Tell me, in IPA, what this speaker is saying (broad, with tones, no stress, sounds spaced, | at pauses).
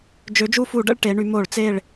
d͡ʒ ø˩˥ d͡ʒ u˦˨ f u˧˩˧ ɖ ə̰˦˨ ɭ ʈ e˩˧ ɳ y˩˧ m o˧˩˧ ɭ t͡s e˦˨ ɭ